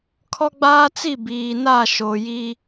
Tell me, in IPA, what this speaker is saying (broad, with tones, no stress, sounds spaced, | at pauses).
kʰ ɔ˦ ɡ͡b aː˦ t͡s i˦˨ b iː˨ n a˦˨ ʃ o˨ j i˦